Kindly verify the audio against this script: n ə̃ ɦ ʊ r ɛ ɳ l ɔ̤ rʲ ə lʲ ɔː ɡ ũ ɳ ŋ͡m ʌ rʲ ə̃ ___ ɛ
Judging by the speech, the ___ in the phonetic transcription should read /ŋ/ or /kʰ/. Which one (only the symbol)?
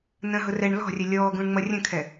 kʰ